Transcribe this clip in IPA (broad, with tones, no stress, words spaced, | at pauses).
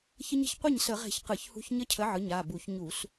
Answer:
çə˦˥ɲə̤˨˥ç qʷe˥˩ɲsə˧˩˧ʁe̤˧˩˧ç qɯ˧˩˧çhṳ˦˥ç ɲə˦˥cʰə˨˥ʕɯ˩˧˩ɲ a˩˧˩bu˧˩˧ç ɲu˧˩˧s